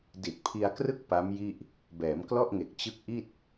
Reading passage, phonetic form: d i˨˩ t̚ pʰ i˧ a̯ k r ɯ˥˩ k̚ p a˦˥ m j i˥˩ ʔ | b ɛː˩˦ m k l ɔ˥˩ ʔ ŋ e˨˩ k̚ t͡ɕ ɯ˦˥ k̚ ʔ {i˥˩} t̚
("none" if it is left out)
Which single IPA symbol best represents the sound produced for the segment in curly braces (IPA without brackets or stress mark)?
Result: i˥˩